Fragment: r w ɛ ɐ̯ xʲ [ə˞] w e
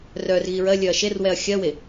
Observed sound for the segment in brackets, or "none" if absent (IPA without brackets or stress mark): ɜ